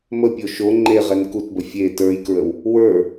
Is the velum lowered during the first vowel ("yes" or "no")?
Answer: no